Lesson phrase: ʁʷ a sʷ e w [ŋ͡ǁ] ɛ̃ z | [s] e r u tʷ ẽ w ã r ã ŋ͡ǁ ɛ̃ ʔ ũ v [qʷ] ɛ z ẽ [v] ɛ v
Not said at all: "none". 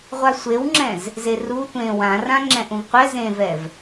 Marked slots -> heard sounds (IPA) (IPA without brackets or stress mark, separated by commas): ŋ͡ǁ, z, qʷ, v